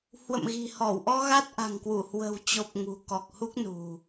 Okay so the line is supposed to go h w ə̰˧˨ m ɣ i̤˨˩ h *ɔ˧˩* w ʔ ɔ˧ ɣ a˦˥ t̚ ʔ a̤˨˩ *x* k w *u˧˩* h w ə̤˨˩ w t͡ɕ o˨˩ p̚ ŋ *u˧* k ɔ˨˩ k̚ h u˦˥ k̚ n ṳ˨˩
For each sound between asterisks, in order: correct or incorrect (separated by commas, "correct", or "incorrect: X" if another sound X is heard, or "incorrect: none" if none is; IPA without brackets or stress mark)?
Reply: correct, incorrect: ŋ, correct, incorrect: ṳ˨˩